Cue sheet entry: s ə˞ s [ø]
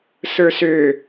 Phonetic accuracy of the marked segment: correct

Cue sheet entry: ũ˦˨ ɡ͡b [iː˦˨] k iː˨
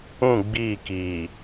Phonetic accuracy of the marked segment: correct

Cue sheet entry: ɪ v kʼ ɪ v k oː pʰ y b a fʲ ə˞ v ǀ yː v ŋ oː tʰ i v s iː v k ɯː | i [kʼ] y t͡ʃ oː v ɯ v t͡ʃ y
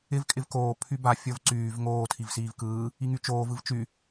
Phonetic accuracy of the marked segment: incorrect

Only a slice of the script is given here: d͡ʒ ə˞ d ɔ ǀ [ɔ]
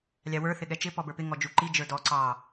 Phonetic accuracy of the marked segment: incorrect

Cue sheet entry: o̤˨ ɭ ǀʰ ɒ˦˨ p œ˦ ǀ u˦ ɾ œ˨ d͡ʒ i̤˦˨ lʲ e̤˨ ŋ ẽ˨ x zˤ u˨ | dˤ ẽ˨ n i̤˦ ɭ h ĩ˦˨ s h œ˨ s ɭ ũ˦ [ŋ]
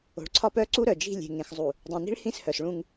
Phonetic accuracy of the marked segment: correct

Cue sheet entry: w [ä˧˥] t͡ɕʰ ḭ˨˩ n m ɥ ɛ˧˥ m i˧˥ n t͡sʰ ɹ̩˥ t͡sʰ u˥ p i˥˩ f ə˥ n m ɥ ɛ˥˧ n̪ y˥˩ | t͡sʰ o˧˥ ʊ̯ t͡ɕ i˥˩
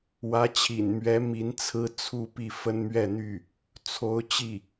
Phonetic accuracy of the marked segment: correct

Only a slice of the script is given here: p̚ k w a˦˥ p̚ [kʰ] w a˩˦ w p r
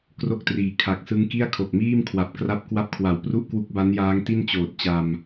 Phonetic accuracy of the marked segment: correct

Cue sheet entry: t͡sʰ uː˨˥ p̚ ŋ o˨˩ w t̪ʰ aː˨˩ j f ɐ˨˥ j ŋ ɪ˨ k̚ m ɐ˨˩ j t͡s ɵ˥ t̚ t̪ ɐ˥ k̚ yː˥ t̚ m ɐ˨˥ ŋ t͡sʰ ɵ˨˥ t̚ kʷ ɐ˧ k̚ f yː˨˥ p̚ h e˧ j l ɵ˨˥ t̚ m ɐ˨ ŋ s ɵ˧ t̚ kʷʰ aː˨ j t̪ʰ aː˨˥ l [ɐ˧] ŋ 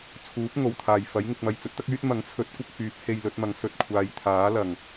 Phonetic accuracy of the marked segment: incorrect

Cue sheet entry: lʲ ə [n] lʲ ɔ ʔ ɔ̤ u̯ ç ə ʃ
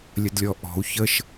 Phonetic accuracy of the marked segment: incorrect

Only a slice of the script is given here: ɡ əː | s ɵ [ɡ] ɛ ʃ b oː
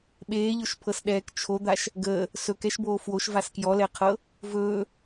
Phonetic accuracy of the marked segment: incorrect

